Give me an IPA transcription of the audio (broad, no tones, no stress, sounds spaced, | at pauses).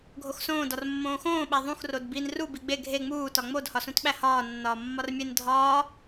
ɡʱ o x s õː d ɒ r mː õː x õː ɓ æ ðˤ ũ x r o d b i n r u b i ɡ͡b e ɡʱ e ŋ͡m uː t ɒ ŋ͡m o d h ɒ s ũ t ɓ æ h ɒː nː ɒː mː ɒ r mʲ e n dʱ ɒː